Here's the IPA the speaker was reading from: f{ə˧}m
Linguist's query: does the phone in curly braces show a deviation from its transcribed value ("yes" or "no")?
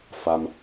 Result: yes